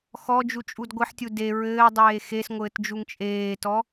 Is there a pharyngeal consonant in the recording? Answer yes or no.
yes